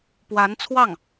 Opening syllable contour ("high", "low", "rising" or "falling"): rising